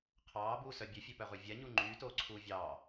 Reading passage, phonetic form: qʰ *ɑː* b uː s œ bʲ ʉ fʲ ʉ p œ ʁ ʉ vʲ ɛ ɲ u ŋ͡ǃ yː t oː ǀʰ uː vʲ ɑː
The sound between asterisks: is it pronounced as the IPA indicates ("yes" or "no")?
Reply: yes